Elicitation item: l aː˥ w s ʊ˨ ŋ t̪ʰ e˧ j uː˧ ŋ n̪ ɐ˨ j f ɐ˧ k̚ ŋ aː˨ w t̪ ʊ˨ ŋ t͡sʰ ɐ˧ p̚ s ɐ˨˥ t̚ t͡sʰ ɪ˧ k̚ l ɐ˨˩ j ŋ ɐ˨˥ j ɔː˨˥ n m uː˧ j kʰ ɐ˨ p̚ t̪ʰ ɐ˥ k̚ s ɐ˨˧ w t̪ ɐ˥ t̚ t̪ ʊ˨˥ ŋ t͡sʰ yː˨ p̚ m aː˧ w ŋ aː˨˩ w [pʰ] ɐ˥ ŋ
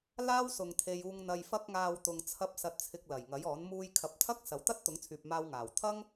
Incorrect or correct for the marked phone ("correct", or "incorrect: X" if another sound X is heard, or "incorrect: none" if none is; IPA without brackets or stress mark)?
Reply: incorrect: t̪ʰ